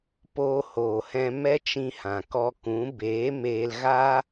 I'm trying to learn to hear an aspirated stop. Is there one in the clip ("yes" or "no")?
no